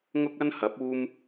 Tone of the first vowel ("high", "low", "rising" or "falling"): high